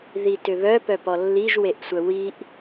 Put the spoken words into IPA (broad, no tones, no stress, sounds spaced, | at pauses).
ð i t ʏ β œ p œ p ɔ lː i ʒ w e ʔ sʷ œ w i ʔ